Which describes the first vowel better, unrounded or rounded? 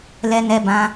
unrounded